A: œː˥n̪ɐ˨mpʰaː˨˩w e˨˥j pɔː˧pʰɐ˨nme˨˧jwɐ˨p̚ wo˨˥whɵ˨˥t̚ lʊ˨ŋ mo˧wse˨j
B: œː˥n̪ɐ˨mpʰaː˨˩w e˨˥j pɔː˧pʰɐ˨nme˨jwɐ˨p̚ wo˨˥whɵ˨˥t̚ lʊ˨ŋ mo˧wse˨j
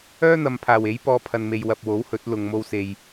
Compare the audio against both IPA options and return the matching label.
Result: B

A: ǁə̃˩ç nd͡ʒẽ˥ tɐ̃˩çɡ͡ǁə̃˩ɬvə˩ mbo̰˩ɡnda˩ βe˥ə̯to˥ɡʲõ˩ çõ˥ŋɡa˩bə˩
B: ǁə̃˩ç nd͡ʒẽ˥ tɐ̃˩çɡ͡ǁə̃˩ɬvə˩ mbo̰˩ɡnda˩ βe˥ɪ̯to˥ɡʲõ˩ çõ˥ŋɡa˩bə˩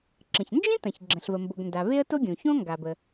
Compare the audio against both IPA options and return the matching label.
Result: A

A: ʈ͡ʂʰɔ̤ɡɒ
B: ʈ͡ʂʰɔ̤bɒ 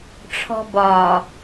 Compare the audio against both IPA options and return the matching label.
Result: B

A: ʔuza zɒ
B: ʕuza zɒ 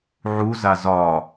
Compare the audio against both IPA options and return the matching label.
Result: B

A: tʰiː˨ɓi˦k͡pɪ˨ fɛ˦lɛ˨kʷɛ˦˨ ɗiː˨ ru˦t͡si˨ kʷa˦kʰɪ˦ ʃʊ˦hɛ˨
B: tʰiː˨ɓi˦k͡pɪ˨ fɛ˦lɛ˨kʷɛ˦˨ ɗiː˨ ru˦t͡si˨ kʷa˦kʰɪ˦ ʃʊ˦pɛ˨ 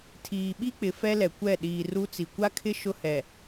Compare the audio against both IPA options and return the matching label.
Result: A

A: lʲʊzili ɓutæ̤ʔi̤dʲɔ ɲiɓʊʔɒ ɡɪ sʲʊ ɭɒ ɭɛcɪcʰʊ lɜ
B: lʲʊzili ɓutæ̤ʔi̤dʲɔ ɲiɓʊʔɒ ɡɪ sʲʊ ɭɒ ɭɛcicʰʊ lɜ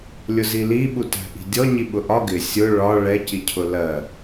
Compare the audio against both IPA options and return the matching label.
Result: B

